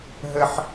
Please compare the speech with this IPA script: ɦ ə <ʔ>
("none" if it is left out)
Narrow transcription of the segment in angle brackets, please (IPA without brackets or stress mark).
ħ